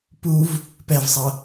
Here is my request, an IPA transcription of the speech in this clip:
p u v | p ɛ v sˤ ʌ

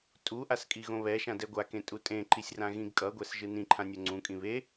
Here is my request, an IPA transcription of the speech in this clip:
tʼ u ʔ a s kʼ i ɣ õ β ɛ ʃ ã d ɛ ɡʷ a k ẽ tʼ u tʼ ẽ ǃ i sʲ r ã ɣ ĩ ɡ kʼ ʌ ɡʷ ɛ s ʒ ɯ n ĩ ǃʰ ã nʲ o ŋ͡ǀ ũ kʼ ĩ β e

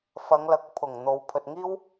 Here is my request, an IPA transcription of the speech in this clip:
f ɐ˨˧ ŋ l ɐ˨ k̚ pʰ ʊ˨˩ ŋ n̪ o˨˧ w pʰ ɵ˨ t̚ ŋ iː˥ w

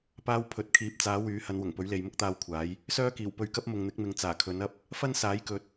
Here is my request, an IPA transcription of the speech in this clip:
p aː˧ w pʰ ɵ˨˥ t̚ kʰ iː˨˥ p̚ t͡s aː˨˥ w yː˨˥ h ɐ˨˧ n w ʊ˨˩ ŋ p ɵ˨˥ ɥ l e˨ j m ʊ˥ k̚ t̪ aː˧ w kʷʰ aː˨˥ j | s œː˥ k iː˨˩ w p ɵ˧ ɥ k ɐ˥ p̚ m ʊ˨ ŋ n̪ ɪ˨˥ k̚ m ɪ˨ ŋ t͡s aː˨˩ kʰ ɵ˨˥ n ɐ˥ p̚ | f ɐ˥ n s aː˨˥ j k ɵ˨ t̚

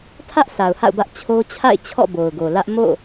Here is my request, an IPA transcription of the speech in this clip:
tʰ ä˦ ʔ sʰ a˨ ʊ̯ h a̰˦˨ ʊ̯ b ä˦ ʔ t͡ɕʰ o˦ t͡ɕʰ a̰˦˨ ɪ̯ t͡ɕʰ ɔ̰˦˨ b o˨ ʊ̯ ɡ o˨ l ä˦ ʔ m o̰˦˨

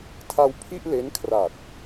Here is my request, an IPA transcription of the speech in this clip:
tʰ a˧ w pʰ i˥˩ ʔ l e˦˥ n kʰ r a˨˩ t̚

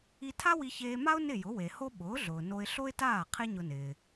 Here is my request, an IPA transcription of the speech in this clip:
i˧ tʰ a˥ w i˧ ç eː˧ m a˥ ʊ̯ n ɪ˥˩ j ʊ˩˥ w e˩ h o˥ ɓ ʊː˩˥ ɮ ʊː˩ n o˧ ɪ̯ ɬ o˥ ɪ̯ t aː˥˩ qʰ e˥ ɲ ʊ˧ n ɪː˩

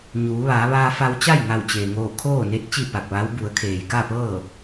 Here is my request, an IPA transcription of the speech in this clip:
ɲ uː˩˧ ʋ aː˩˧ ʋ aː˧ f a˧ w t͡ɕ a˥˨ j ŋ a˧˩ w t͡ɕ eː˩ ŋ oː˧˩ kʰ oː˥˨ n e˧˥ t̚ t͡ɕ i˥˨ p a˧˩ k̚ ʋ aː˧˥ w b u˩˧ ə̯ kʰ eː˩ j k a˥˨ p ɤː˥˨

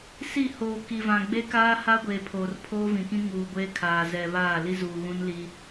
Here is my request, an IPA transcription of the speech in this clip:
s i˦˨ h oː˨ k i˨ v ã˨ ɡ͡b e˦ k aː˦ h a˦ ɡʷ eː˨ pʰ oː˨ r pʰ oː˦ v ĩ˨ k ĩ˦ ŋ uː˨ ɡʷ eː˦ kʰ aː˨ z ɛ˨ β aː˦˨ l i˦ z uː˨ ɣ ũ˦ n l i˦

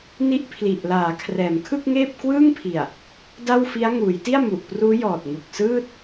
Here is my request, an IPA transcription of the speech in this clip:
n i˦˥ ʔ pʰ l i˨˩ ʔ l aː˩˦ kʰ r ɛː˩˦ m kʰ ɯ˥˩ k̚ ŋ eː˥˩ p̚ k w ɯː˥˩ ŋ pʰ i˨˩ a̯ | d a˥˩ w f i˦˥ a̯ ŋ uː˩˦ j t i˥˩ a̯ m u˨˩ ʔ p r uː˦˥ j ɔː˨˩ t̚ ŋ u˨˩ k̚ s ɯː˥˩ t̚

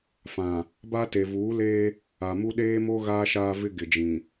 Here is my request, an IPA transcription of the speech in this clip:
f ã˨ | b a˦ t e˨ v uː˨˦ l eː˦ | a˨ m u˦ ɗ eː˦ m o˦ ɣ aː˦ ʃ aː˦ v ɪ˦ ɡ ɪ˨ d͡ʒ ĩ˨

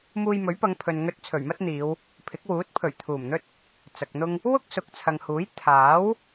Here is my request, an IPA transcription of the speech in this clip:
m uː˧ j m ɵ˨˥ ɥ p ɐ˨˧ ŋ pʰ ɵ˨ n ŋ ɵ˧ t̚ t͡sʰ ɵ˨˩ ɥ m ɐ˥ t̚ n̪ iː˨˧ w | pʰ ɪ˨˥ k̚ w uː˨˥ t̚ pʰ ɵ˨˩ ɥ t̪ʰ uː˨˩ m n̪ ɵ˥ t̚ | t͡s ɐ˨ k̚ n̪ ʊ˥ ŋ | w ʊ˥ k̚ s ʊ˨ k̚ t͡sʰ ɐ˨ ŋ h uː˨˥ j t̪ʰ aː˨˥ w

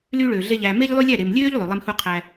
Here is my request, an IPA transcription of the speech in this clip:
l yː˦ ɭ øː˨ ɮ e˦ ʎ æː˧ m e˦ ʎ lˠ y˦ lʲ æ˦˨ ɾ e˨ m lʲ øː˦ ʎ lˠ y˨ lˠ e˦ m h u˦ qʰ æ˦

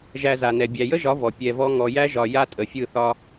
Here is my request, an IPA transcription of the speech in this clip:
ʒ æ˧ z a˨ n ɛ˨ bʲ æ˨ j ə˦ ʒ ɒ˨˦ v ɔ˨ pʲ ɛ˧ v ɔ˦ ŋ ɔ˨ j æ˦ ʒ ɒ˧ j a˦ tʼ ə˨ fʲ ɯ˦˨ θ ɒ˦

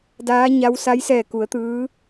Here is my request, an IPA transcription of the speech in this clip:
d aː˧˥ ɲ a˧˥ w s a˧˥ j s ɛː˧˩ k u˩˧ ə̯ t̪ ɯː˧˥

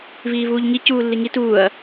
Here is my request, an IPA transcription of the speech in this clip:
v iː v uː ʎ ŋ i c uː lː i ŋ i t uː ɐ̯

